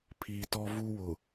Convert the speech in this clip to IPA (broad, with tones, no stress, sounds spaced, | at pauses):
pʰ iː˨ t ɔ˦ v uː˦ w ʊ˨